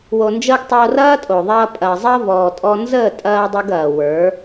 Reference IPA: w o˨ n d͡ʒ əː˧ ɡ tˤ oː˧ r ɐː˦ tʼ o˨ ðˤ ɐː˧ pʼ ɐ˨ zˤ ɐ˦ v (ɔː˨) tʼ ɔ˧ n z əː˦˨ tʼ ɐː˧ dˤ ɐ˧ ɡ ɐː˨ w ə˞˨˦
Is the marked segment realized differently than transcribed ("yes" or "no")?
no